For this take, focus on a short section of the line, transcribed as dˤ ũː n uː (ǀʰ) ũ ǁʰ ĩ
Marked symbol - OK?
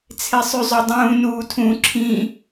no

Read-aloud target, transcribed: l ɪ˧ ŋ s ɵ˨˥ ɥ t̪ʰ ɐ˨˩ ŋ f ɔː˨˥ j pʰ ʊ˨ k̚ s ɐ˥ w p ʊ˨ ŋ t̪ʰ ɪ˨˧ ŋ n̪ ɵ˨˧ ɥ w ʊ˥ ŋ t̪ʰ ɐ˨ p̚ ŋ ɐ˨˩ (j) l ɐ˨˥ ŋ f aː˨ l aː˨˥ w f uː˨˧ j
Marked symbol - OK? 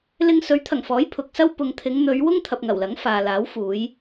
no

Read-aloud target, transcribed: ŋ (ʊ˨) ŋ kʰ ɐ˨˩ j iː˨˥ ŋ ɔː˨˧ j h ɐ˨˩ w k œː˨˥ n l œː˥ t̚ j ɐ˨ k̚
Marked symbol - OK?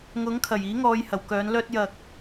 no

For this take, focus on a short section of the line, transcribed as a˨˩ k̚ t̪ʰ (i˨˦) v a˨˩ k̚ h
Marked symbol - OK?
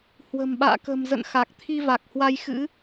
no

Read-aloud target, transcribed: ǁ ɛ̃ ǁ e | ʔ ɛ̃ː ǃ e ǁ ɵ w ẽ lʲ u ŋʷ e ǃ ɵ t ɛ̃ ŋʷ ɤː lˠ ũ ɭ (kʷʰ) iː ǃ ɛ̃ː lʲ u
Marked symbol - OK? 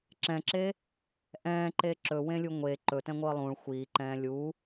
no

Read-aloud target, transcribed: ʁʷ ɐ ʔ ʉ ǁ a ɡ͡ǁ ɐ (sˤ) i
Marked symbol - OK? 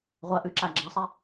yes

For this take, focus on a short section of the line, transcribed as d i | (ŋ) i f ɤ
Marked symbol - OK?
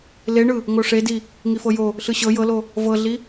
yes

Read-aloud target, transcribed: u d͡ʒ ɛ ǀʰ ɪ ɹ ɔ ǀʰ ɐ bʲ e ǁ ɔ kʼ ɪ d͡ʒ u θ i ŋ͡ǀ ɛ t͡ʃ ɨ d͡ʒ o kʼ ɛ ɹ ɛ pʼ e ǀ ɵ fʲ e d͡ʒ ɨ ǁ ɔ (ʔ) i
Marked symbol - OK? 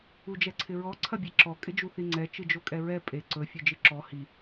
no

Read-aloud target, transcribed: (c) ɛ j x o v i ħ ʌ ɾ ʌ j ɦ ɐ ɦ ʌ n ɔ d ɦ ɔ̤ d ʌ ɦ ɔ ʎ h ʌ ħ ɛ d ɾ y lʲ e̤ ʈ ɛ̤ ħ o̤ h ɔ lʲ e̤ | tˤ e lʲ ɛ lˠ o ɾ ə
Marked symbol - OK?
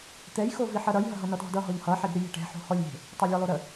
no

